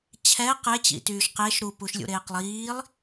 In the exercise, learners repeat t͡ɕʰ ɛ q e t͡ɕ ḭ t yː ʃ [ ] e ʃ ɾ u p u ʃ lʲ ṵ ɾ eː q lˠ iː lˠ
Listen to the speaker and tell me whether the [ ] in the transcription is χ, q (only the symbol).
q